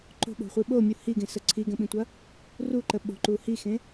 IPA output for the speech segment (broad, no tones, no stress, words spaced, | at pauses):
ǃo̤ɓo̤χʷi ɓomʲu hiɡẽsə ǀʰiɡə̃ɓĩtʷɐ | ruǃə ɓo̤ǃu hixẽ